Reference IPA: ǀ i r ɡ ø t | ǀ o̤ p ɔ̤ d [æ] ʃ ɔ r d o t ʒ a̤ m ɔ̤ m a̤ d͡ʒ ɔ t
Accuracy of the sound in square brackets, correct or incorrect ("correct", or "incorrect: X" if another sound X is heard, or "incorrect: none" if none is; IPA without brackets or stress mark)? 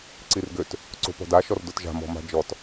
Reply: incorrect: a